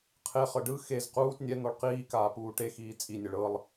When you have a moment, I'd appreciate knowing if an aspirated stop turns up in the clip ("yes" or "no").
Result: yes